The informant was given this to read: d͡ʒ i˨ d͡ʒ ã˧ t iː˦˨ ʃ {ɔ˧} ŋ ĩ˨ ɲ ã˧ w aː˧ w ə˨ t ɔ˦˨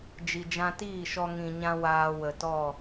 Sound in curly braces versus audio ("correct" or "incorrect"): correct